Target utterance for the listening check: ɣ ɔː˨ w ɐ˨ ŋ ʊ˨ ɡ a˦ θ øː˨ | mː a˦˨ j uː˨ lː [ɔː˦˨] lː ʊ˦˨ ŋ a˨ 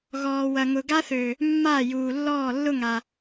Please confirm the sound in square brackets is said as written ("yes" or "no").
yes